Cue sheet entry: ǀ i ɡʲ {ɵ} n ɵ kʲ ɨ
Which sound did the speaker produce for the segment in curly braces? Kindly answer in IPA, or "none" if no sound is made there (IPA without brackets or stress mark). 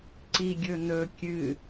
ɵ